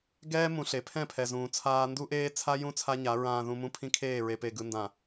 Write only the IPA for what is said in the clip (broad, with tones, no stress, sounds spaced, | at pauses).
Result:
ɡ ɛː˦ m ũ˨ ɬ e˨˦ pʰ ɛ̃˦˨ pʰ ɛ˨ z ũː˨ t͡sʰ aː˦ n d u˦ ʔ eː˦ t͡sʰ a˦ j ũ˦ t͡sʰ a˦ ɲ a˨˦ ɹ ãː˨ ð ũ˨ m ũ˦ pʰ ĩ˦ kʰ eː˦˨ ɹ e˨ p e˨ ɡ ɯ˨ n d ã˨